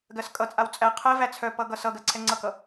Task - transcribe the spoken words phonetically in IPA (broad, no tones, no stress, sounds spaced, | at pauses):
ɡ ɜ s kʼ ʌ t͡sʼ a w t͡sʼ æ qʰ ɜ v æ t͡sʰ œ p ʌ ɡ ʌ s ʌ ɡ ɜ ǀʰ ɛ ŋ͡ǀ ʌ k ʌ